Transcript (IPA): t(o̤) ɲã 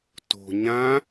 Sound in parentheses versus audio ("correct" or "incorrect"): correct